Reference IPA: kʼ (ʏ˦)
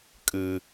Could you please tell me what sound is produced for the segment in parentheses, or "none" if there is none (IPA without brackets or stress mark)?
ɨ˦